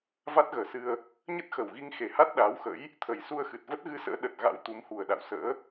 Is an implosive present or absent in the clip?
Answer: present